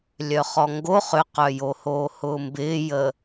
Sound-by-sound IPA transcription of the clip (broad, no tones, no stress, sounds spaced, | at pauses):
lʲ œ χ ɔ ŋ ɡ o χ ʏ q œ j o h oː h ʊː m b ɪː j əː